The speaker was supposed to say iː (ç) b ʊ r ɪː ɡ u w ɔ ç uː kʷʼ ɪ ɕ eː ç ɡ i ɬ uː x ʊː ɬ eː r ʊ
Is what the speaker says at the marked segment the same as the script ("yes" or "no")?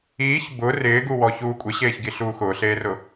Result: yes